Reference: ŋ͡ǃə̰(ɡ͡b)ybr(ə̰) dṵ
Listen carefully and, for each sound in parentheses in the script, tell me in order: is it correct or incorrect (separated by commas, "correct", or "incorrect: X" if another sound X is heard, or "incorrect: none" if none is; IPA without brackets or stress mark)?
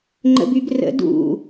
incorrect: b, correct